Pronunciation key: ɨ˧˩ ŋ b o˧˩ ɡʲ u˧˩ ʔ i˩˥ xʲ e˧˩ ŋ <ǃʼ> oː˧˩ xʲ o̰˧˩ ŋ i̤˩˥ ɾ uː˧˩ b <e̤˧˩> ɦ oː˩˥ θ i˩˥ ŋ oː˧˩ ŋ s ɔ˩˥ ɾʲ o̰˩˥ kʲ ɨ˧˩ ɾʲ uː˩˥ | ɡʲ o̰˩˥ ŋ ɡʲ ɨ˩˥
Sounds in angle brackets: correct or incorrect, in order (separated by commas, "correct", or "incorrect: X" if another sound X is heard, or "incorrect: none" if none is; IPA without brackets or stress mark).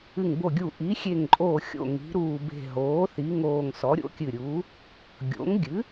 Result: correct, correct